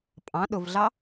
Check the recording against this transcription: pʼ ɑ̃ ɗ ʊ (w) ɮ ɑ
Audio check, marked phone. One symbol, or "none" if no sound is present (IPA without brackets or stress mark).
v